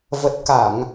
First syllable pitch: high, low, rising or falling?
low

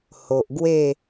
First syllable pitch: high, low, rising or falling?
low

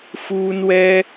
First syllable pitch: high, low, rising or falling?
high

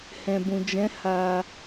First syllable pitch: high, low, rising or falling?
low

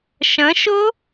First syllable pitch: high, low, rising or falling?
rising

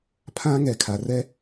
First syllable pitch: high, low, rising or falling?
high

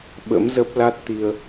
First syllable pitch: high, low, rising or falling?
rising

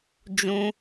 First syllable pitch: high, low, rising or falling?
high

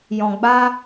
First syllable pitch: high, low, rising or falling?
low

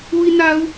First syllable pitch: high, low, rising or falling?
high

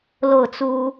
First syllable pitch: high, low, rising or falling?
falling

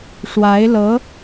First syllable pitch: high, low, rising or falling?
rising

